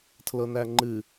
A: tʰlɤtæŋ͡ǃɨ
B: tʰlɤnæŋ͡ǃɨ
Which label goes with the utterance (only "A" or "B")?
B